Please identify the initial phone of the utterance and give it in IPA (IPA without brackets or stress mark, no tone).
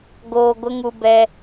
ɡ